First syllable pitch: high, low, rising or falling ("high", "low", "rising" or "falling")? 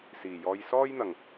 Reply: low